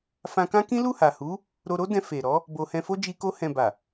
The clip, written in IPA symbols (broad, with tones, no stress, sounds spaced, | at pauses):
f ã˧ k ã˦ k ĩ˦ l u˦˨ h a˨ h u˨˦ | ɾ o˧ ɾ o˦ d ɛ̃˧ f e˨ ɾ ɔ˨˦ | b o˧ h ɛ̃˧ f o˦ d͡ʒ i˧ k o˧ h ɛ̃˨ b a˨